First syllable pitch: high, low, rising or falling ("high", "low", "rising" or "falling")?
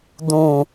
low